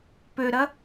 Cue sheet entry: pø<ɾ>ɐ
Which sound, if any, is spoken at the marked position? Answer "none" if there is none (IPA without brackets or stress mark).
ɾ